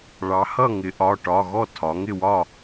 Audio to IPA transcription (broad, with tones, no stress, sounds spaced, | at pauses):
ɭ ɑ˩˧ h ʌ˥˨ ŋ ɪ˩˧ ʔ ɒ˩˧˩ ʈ ɒ˩˧˩ ɣ ɔ˥˨ tʰ ɒ˩˧ ŋ ɪ˥˨ w ɒ˥˨